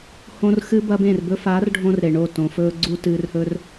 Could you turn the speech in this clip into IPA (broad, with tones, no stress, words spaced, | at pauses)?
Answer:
hõ˧r xɨ˨bɐ˨ bẽ˦˨rbɵ˦ faː˨˦rɖʱõ˧r ɾe˨ɳo˦˨ tõ˨fɵː˧ɡ͡ǀu˧ tɨː˨rhɵ˧r